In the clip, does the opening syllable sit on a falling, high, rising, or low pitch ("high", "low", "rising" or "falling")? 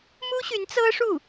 high